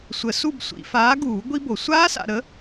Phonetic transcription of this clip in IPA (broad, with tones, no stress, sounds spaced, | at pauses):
sʷ ə˨˩˦ s u˥˧ b sʷ ḭ˨˩˦ f aː˨˥ ɡ uː˨˩˦ ɡʷ i˦˥ b o˨˩˦ sʷ aː˦˥ s a̰˨ ɾ ə˨˥